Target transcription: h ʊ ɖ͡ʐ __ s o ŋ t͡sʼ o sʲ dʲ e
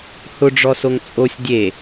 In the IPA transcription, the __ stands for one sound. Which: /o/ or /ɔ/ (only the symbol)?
ɔ